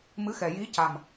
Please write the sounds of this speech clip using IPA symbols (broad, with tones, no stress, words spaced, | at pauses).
mɨ˧˥xɛ˨˩ ji˧˥ca˨˩m